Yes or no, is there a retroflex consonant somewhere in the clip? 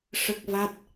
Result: yes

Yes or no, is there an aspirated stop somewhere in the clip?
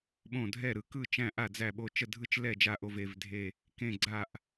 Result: no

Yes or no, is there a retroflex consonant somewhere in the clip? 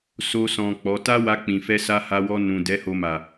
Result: no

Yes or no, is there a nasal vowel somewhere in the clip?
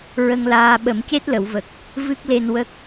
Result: no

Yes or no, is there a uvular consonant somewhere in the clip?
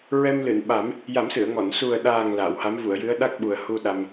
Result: no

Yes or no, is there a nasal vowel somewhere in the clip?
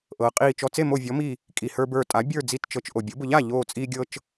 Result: no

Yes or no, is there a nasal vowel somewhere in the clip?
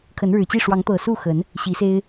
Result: no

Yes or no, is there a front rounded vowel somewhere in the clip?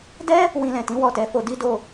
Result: no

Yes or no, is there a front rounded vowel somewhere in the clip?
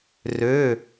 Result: yes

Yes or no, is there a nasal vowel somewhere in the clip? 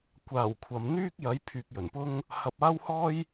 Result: no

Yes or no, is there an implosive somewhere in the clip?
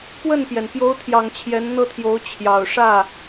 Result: no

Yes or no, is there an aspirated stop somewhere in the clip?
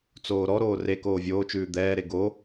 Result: no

